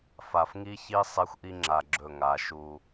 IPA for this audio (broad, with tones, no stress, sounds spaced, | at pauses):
f a˨ f ŋ i˦ ç i˦ sˤ e˦ xʷ ʔ i˦ ŋ͡ǁ a˨ ɡ͡ǁ ɵ˦˨ ŋ a˨˦ ʃ u˦